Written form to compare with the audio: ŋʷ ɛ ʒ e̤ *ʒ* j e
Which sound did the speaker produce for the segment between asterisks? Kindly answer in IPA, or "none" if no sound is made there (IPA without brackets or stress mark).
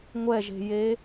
none